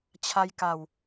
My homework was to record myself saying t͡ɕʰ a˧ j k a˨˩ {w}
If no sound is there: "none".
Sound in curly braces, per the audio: w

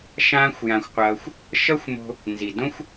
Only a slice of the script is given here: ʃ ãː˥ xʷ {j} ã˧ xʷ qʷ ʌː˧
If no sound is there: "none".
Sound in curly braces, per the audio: j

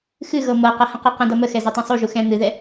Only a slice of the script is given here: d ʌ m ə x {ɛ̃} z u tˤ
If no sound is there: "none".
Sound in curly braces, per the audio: ɛ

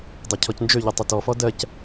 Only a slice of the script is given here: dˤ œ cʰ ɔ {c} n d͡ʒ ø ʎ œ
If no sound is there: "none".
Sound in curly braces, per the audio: c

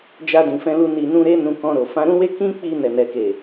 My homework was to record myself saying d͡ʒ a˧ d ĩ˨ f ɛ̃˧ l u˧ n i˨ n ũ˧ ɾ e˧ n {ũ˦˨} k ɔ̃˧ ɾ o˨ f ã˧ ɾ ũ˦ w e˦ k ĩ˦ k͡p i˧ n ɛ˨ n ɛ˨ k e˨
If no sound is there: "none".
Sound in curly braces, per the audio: ũ˧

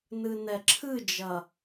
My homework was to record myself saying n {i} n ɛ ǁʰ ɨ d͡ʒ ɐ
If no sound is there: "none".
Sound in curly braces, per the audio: ɨ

